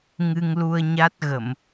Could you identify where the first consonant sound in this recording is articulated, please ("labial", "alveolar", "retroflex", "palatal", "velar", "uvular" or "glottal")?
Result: velar